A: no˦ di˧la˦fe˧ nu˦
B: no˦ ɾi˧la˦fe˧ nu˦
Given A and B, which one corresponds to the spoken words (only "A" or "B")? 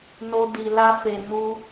A